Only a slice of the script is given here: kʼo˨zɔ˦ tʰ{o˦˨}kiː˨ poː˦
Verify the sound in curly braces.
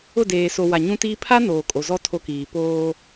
incorrect: o˦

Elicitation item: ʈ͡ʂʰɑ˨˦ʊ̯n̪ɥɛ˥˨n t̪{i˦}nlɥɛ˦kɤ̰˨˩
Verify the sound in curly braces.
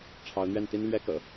correct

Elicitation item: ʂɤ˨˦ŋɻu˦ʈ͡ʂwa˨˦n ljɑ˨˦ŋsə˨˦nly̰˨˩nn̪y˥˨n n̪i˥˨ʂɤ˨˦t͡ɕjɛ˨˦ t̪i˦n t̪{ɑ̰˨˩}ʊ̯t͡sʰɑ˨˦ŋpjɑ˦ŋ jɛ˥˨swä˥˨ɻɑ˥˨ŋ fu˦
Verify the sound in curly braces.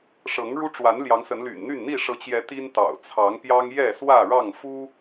correct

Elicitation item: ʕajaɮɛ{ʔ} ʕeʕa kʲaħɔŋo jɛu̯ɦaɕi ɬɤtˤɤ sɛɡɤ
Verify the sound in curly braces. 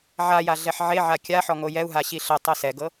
incorrect: ħ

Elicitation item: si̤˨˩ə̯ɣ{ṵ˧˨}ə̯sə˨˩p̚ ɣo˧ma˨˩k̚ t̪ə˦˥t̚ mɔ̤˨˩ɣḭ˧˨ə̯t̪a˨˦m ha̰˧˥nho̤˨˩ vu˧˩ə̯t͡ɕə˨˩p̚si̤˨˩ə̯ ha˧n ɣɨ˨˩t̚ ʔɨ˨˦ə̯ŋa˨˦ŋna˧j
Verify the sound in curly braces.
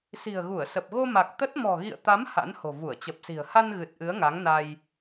incorrect: u˧˩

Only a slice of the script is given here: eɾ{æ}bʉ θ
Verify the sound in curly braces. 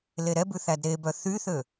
incorrect: ɛ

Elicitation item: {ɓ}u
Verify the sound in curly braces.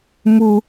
incorrect: m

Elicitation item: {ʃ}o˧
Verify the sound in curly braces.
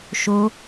correct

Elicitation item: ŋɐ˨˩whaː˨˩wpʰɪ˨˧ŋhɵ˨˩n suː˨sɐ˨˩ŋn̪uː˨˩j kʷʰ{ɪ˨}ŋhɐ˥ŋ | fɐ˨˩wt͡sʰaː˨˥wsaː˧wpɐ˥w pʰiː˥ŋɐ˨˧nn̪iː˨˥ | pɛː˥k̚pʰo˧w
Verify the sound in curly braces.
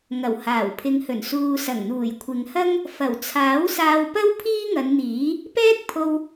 correct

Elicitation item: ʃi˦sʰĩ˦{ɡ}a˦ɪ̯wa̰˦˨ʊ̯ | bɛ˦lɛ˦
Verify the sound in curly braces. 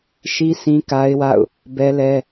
incorrect: k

